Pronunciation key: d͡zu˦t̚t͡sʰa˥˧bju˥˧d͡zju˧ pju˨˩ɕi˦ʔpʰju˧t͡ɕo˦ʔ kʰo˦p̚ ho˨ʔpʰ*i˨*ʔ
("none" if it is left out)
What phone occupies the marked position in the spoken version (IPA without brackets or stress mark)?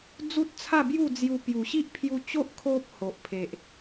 e˨